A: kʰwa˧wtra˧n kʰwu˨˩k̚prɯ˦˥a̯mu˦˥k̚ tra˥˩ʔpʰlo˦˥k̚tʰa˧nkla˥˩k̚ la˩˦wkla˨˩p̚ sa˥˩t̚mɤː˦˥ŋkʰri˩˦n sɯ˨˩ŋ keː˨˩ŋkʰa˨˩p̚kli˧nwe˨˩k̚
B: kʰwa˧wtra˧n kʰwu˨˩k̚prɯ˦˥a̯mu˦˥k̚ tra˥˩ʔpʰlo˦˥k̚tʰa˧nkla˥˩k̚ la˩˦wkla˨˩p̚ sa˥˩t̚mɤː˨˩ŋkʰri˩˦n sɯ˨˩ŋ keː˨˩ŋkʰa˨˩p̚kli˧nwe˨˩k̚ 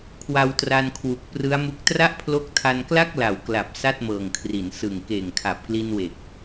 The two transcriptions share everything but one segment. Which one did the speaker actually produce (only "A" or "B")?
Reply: B